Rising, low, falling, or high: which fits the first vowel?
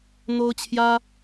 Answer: high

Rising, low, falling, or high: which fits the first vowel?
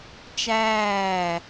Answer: falling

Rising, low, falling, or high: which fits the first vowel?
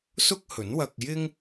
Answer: high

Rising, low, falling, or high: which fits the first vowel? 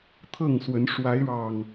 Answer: falling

